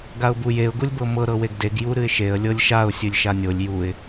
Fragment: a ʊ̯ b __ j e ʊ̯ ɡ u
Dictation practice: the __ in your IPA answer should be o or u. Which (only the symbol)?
u